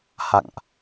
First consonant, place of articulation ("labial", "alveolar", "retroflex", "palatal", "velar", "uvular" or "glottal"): glottal